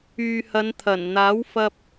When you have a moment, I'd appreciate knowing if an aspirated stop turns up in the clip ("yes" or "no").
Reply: yes